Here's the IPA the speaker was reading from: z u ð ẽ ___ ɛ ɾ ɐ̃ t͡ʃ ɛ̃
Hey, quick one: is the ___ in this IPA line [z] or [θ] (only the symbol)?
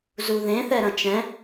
θ